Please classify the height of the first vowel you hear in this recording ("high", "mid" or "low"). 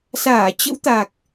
low